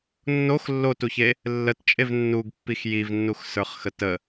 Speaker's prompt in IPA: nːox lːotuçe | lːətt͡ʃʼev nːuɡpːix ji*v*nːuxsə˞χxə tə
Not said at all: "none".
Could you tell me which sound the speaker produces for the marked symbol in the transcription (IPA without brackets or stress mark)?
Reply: v